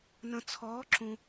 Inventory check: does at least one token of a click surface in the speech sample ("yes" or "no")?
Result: yes